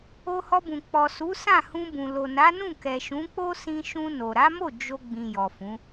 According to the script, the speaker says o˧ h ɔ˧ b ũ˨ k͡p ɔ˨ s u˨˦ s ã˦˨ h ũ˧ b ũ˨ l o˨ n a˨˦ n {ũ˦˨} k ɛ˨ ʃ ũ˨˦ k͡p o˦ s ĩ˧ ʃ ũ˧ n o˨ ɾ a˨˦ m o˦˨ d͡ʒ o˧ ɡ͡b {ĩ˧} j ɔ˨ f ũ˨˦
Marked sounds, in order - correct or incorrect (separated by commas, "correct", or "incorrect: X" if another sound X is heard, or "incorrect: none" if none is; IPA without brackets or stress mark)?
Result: correct, incorrect: ĩ˨